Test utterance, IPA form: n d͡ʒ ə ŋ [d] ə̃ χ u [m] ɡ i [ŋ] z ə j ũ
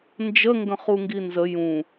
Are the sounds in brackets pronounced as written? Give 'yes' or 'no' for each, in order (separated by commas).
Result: no, no, no